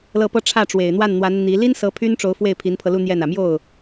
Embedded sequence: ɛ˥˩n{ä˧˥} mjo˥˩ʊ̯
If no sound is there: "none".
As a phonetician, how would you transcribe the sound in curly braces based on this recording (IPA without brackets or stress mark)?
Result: ä˨˩